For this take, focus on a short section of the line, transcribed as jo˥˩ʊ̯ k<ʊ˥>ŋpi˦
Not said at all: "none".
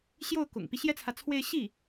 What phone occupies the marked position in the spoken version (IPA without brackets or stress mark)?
ʊ̰˨˩